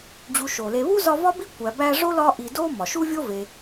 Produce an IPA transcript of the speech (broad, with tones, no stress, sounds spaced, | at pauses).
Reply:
d͡ʑ u˨ ʃ o˩ l e˨ β u˥ z ɒ˦ v ɒ˥ b i˥ kʷ æ˨ b æ˦ ʐ o˥ l ɒ˦ ʔ i˨ d o˥ m ɒ˩ ʃ u˥ vʲ o˥ v e˨